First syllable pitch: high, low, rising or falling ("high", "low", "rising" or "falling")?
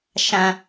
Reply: high